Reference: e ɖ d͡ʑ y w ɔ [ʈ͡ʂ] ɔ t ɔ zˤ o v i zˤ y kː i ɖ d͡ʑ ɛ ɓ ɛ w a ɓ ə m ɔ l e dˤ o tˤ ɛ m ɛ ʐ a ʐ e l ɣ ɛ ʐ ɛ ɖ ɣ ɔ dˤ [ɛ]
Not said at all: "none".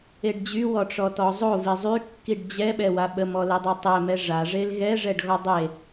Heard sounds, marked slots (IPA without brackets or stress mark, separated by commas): ʈ͡ʂ, e